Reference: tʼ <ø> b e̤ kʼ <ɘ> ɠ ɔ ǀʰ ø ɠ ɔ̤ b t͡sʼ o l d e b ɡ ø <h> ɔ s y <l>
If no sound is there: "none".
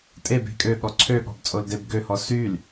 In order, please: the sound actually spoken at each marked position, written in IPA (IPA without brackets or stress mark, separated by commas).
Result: e, ø, h, l